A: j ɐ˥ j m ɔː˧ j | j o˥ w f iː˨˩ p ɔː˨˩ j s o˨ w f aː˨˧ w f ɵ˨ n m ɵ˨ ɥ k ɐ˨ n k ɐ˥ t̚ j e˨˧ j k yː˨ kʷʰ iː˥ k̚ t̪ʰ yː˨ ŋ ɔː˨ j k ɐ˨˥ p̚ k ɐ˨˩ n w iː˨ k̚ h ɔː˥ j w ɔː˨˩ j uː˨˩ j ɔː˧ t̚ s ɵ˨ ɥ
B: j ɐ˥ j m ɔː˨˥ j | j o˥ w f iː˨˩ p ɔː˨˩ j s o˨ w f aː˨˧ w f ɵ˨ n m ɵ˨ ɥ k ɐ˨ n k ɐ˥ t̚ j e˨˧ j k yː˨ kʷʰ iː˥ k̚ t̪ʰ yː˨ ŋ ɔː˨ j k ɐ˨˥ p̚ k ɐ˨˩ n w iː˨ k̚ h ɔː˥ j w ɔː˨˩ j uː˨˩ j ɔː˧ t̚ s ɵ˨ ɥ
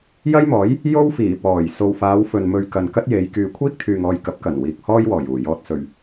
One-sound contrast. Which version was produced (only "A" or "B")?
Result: B